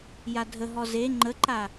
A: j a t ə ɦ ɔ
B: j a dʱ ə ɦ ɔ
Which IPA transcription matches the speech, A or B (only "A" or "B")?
B